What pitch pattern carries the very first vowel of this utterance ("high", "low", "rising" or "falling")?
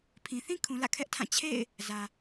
low